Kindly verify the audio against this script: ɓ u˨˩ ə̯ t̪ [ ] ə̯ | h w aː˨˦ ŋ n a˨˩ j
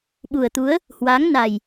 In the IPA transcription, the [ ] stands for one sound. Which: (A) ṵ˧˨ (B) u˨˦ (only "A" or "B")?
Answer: B